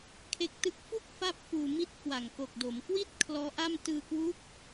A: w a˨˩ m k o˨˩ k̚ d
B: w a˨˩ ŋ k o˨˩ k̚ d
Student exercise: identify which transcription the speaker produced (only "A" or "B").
B